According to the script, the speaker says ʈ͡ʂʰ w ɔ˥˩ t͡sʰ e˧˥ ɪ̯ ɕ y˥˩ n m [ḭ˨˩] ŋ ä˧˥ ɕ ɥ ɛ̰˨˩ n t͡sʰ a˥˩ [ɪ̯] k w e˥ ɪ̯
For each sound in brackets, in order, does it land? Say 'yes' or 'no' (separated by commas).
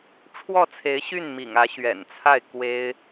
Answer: yes, yes